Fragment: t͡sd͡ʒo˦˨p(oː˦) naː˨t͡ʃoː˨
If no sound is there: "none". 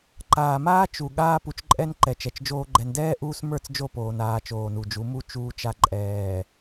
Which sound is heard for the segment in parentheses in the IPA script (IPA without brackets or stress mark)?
oː˨